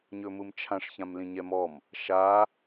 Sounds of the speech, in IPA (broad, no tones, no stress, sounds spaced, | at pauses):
ɲ ɵ m ɯ m t͡ʃʰ ã ʂ ç ã m l ĩ ɲ ɛ m ɔ m | ʃ a